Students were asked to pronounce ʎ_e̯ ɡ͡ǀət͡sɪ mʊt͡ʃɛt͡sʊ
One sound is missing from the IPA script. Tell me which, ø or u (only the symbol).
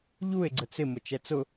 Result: u